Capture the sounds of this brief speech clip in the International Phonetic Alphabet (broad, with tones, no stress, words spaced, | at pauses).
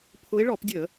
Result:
pʰʊ˨˦ɪ̯ɭɔ˧˩˧pdʲə˧˩˧